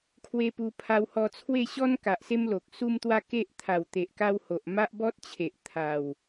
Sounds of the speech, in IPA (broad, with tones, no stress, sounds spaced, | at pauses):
kʰ w e˧ p u˧ pʰ a˧ w h ɔ˧ t͡sʰ w e˥˧ ɕ ɔ˦ n k a˨ ʔ s e˦ m l o˨ k̚ s u˧ m t̪ w a˧ k e˦ ʔ t̪ʰ a˨˩ w t̪ e˨ ʔ k a˧ w h o˨ ʔ m a˦ ʔ b ɔ˦ t̚ t͡ɕʰ e˨ ʔ t̪ʰ a˨˩ w